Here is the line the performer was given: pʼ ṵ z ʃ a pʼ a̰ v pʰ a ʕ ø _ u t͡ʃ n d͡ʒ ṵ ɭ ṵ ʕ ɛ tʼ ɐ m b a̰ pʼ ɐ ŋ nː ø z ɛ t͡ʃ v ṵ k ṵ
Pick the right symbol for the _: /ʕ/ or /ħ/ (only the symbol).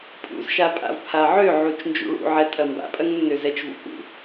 ʕ